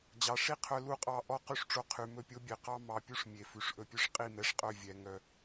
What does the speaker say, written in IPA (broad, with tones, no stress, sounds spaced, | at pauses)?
d͡ʑ ɑ˨ ʂ i˦ qʰ œ˧ l u˧ qʼ ɑ˧ ʔ ɔ˦˨ q y˦ ʂ ʈ͡ʂ o˧ qʰ y˨ m ɵ˦˨ pʲ o˦ bʲ e˨ q ɑ˦ m ɑ˧ pʲ u˦ ʂ mʲ e˨ f ʉ˨ ʂ ʔ ɵ˧ pʲ ɵ˦ ʂ qʼ i˦˨ m ɛ˧ ʂ qʼ œ˦˨ vʲ ɛ˧ ŋ œ˧